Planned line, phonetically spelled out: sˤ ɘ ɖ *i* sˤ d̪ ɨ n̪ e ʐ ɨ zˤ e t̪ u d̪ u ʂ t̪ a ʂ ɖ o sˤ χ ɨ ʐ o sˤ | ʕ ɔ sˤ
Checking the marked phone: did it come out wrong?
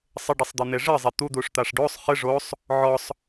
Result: no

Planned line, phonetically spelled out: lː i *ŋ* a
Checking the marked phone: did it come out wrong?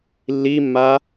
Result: yes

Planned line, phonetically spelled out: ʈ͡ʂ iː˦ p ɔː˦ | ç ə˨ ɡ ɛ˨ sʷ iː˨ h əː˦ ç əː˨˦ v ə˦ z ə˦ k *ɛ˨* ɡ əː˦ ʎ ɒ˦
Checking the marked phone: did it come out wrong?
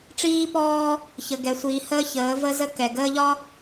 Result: no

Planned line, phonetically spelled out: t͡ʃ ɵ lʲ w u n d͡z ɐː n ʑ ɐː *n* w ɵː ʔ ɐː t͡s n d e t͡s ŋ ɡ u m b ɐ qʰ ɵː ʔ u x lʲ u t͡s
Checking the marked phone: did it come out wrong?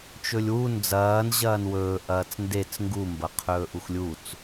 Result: no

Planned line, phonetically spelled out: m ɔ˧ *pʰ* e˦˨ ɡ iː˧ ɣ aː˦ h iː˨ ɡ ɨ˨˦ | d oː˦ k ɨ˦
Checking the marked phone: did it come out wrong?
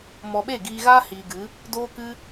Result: yes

